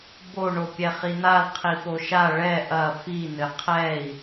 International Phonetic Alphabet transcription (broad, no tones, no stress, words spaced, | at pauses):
bo ɳopʲɛχin̪al qʰipoʃa ɭɛ ʔɐ fi n̪ɘqʰɛi̯